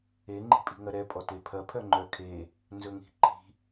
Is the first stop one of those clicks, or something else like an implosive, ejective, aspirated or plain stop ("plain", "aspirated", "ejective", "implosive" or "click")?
click